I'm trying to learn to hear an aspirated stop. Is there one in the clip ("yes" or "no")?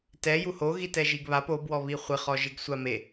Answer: no